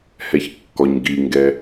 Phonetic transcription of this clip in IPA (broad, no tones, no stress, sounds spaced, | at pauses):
h ɛ ç kː ɔ ɲ ɡ i ŋ ɡ ɛ